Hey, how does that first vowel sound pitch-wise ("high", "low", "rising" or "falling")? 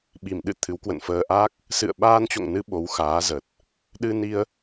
low